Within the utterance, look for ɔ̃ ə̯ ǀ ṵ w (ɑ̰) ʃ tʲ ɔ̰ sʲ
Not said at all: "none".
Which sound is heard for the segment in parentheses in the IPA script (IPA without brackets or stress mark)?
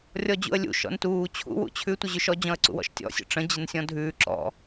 ɔ̰